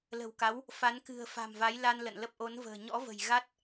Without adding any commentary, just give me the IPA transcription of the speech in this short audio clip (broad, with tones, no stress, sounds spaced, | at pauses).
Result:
l ə̤˨˩ w k a˨˦ w | f a˨˦ n k ɨ̤˨˩ ə̯ f a̤˨˩ m v a˨˦ j l a˧ n l ə̰˧˨ n l ə˦˥ p̚ ʔ o˨˦ n v ə̤ː˨˩ ɲ ɔ̰˧˥ v ə̤˨˩ j ɣ a˦˥ t̚